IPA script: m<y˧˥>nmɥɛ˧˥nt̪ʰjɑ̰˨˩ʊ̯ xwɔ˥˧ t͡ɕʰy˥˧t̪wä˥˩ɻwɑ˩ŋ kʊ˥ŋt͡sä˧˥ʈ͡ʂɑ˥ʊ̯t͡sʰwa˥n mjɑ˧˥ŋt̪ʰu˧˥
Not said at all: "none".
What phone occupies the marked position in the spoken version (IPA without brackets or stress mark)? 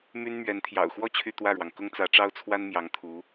y˥